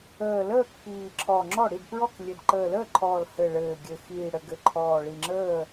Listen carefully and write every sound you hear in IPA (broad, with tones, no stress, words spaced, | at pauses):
əː˨˩ləː˥˨k piː˨˩ǁʰɔ˨˩ ŋ͡ǁɔ˥˨ ɽi˥˨dpɹɔ˥˨klʲɘ˨˩d ǃəː˨˩ləː˥˨ǃʰɔː˨˩l hɘ˨˩ɭɘː˨˩ɡʲɘ˨˩ xiː˨˩ ɽɘ˨˩ɡɘ˨˩ǃʰɔː˨˩ ɭi˨˩ŋ͡ǁəː˥˨